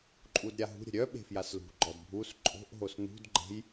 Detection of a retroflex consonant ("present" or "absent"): absent